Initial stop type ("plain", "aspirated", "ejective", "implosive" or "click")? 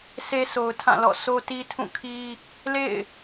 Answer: aspirated